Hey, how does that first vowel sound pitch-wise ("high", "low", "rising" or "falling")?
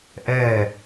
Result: falling